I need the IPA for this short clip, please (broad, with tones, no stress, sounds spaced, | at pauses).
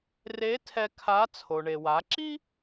r e˧˥ tʰ ɛ˧ kʰ a˧˥ t͡sʰ o˩ ɳ e˩ w a˩˧ ǁ i˥